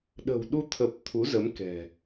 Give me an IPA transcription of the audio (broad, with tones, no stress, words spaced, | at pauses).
ɗə̤˨˩wɗu˧ t̪ʰə˨˩p̚ t̪ʰu˨˦zə˨˦m kɛ̤˨˩